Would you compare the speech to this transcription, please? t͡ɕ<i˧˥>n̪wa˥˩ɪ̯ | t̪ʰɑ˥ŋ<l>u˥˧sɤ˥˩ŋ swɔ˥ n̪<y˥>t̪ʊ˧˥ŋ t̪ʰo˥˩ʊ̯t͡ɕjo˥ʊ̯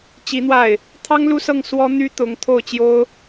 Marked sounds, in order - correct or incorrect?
correct, correct, correct

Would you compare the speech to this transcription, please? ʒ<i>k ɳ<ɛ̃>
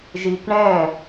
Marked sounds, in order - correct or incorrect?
correct, correct

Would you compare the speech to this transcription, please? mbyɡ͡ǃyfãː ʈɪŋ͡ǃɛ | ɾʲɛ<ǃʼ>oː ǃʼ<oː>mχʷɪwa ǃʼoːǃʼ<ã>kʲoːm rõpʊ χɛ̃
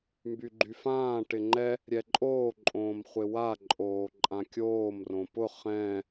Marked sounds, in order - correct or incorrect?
correct, incorrect, correct

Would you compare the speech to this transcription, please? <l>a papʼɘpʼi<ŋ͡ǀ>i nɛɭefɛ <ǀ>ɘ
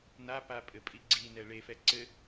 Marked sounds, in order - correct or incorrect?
incorrect, incorrect, correct

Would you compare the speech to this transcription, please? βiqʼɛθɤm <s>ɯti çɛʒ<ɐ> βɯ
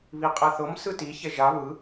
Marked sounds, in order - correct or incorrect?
correct, incorrect

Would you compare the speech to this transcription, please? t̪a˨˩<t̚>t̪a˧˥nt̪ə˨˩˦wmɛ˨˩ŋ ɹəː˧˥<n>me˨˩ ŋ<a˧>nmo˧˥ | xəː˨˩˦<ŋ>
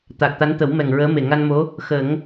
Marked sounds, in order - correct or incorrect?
incorrect, incorrect, correct, correct

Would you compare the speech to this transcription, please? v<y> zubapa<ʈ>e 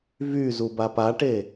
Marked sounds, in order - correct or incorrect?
correct, correct

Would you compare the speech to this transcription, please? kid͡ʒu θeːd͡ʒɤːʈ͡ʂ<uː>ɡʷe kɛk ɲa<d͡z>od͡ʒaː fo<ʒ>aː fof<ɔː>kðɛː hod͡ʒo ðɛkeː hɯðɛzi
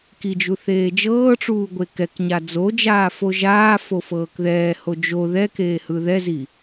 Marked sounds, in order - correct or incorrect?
correct, correct, correct, incorrect

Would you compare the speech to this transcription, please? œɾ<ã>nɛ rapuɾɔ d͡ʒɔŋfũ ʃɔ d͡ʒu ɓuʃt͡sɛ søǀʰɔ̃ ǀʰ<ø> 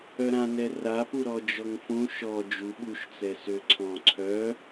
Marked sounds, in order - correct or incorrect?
correct, incorrect

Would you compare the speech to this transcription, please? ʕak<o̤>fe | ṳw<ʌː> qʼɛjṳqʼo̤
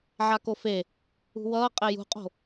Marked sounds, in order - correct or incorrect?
incorrect, correct

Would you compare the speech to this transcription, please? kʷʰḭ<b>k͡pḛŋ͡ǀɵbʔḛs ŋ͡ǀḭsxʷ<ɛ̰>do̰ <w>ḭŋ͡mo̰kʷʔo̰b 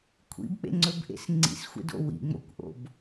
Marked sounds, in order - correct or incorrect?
correct, incorrect, correct

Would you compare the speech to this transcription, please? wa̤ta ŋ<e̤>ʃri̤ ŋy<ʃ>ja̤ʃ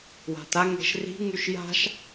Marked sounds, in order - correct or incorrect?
correct, correct

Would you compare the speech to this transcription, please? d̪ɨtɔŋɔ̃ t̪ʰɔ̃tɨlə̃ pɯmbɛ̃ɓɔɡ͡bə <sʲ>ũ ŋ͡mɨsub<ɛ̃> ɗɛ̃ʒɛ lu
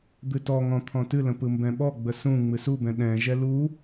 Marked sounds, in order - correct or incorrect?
incorrect, correct

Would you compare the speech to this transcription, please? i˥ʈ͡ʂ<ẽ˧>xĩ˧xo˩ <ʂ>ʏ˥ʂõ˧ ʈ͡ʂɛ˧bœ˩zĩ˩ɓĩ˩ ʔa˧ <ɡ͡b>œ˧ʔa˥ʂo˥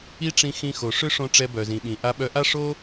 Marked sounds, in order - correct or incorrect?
incorrect, correct, incorrect

